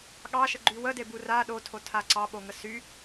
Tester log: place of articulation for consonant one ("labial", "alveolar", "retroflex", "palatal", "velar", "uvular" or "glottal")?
velar